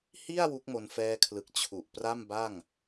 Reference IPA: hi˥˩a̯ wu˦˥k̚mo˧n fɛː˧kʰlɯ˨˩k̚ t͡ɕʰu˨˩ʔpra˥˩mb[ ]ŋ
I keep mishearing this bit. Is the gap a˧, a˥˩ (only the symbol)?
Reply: a˥˩